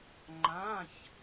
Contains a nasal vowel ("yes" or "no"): yes